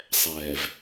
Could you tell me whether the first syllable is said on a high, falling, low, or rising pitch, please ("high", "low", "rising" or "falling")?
low